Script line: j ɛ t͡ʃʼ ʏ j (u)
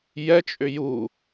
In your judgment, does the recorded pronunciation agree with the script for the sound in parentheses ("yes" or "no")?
yes